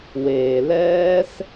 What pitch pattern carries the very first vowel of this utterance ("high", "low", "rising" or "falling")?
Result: low